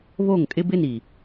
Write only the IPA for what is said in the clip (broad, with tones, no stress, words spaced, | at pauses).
βo˦˨ŋkʼɪ˦bɪ˦ni˨